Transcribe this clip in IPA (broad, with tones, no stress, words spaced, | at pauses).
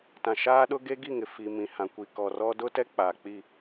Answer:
tã˨ʃaː˦ɗʊ˦ ɡe˦ɡi˦˨ŋɪ˨ fi˨ mĩ˨hã˨ kʷi˨kɔ˨rɔ˦ dʊ˦tɛ˦ k͡paː˨k͡pi˦˨